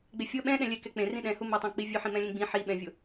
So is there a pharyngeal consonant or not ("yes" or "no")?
yes